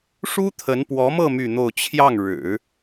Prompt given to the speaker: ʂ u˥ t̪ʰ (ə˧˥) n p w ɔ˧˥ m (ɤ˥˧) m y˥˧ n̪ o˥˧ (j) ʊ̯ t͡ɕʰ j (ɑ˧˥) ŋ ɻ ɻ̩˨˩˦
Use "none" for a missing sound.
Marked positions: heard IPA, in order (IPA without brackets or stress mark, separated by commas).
ə˧˥, ɤ˥˧, none, ɑ˥˩